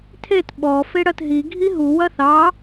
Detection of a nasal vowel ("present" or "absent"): absent